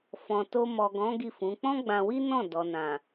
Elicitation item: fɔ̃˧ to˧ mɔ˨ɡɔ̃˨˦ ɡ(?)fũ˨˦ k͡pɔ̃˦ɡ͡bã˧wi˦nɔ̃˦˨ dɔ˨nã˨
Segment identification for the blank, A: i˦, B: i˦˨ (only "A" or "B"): B